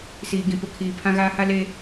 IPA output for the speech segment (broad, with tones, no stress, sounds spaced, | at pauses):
s iː˨ ɡ ĩ˨ p ʊ˨ kʰ iː˨ pʰ ã˦ ɣ aː˦ h a˦ l eː˦